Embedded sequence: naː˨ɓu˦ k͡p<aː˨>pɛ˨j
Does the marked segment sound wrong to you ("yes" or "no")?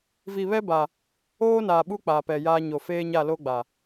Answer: no